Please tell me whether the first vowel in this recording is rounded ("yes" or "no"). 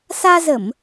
no